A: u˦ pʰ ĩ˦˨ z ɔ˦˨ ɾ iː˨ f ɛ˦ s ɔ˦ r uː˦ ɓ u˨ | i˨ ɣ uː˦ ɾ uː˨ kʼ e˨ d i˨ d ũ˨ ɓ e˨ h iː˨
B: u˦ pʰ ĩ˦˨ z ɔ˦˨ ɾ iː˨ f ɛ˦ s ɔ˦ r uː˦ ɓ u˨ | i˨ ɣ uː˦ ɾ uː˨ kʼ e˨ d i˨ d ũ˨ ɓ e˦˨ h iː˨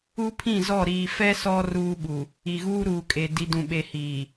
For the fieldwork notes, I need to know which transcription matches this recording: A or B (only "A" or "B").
A